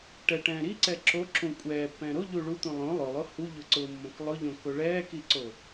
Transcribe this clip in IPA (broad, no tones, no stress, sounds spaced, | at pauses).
ʈ ɛ ʈ ɛ̃ː ɾ i ǀ ɛ ǁ o ǁ ũ kʷʼ ɛː pː ɛ̃ ɾ o ʎ u ɭ u t̪ ũ lˠ õ lˠ ʊ lˠ o h u ʎ ʊ ǀ ʊː mː õ k lˠ ʊ ʎ õ k o ɭ ɛː k i ǀ o